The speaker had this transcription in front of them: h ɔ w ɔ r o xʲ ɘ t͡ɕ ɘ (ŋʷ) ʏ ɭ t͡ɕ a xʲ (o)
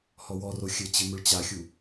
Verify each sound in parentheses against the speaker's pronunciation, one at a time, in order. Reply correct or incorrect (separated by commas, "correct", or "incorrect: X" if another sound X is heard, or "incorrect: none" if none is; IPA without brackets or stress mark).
incorrect: m, incorrect: u